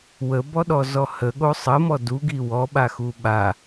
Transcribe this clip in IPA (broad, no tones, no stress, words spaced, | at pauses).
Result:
wəbɔɗɔzɔ həɠo sˤəmɔ duɡi wɔɓaxu ɓa